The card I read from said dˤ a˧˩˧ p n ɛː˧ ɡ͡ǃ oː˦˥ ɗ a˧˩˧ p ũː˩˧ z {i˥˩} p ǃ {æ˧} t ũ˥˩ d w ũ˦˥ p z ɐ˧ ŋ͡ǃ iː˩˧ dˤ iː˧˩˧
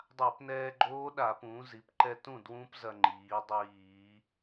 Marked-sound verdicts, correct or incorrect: incorrect, incorrect

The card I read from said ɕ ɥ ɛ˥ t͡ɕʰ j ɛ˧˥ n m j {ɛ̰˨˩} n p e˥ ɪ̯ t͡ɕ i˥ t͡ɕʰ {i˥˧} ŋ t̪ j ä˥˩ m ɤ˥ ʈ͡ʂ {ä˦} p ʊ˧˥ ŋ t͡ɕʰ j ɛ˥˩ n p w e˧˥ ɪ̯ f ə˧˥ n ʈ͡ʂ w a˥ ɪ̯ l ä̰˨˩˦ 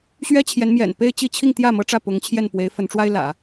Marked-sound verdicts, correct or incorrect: correct, correct, incorrect

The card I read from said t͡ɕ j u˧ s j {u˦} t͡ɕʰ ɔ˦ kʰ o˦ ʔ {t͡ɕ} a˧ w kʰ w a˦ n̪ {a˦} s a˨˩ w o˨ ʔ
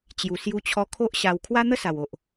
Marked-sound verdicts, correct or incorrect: correct, incorrect, incorrect

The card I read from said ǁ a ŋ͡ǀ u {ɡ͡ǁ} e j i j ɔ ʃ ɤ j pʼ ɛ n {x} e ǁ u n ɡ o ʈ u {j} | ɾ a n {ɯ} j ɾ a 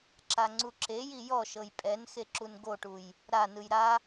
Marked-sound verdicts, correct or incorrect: incorrect, correct, correct, correct

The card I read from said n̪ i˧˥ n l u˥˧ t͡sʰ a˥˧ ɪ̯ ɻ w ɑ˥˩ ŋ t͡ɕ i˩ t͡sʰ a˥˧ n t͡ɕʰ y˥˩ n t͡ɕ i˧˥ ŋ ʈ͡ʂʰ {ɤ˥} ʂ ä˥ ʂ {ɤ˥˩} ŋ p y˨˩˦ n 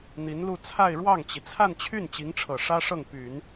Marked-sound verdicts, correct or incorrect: incorrect, correct

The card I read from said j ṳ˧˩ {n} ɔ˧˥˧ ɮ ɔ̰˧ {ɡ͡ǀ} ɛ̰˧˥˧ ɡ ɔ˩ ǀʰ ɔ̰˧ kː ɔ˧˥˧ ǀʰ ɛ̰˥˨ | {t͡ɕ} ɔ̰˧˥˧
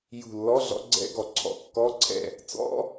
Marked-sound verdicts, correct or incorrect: incorrect, correct, incorrect

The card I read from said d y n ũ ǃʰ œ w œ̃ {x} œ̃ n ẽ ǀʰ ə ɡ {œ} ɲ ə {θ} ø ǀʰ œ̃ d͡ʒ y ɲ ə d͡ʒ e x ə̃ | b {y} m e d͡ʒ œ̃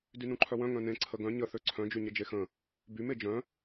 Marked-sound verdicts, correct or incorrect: incorrect, incorrect, correct, correct

